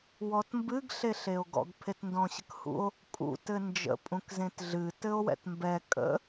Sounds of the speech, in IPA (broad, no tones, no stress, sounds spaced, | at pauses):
w ɔ t m b ɨ ɡ ɬ e ɬ e o̯ ɡ ɔ̰ ɡ pʰ e t n d ɔ̃ ɕ ə k h ṵ o̯ | kʼ ṵ t ɘ n d͡ʒ ə̰ pʼ ũ k z ẽ t ɮ ɨ t ɘ o̯ w ɛ̰ t m b ɛ kʼ ə̰